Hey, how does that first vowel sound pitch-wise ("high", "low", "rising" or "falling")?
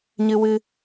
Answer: high